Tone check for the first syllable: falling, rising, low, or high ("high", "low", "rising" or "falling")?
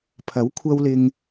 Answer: rising